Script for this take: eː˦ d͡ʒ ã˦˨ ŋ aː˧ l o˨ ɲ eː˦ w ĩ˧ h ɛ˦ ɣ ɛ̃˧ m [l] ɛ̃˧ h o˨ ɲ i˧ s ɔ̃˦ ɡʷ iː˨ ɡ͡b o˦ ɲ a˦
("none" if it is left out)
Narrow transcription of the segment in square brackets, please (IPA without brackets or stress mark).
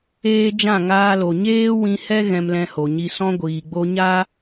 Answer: l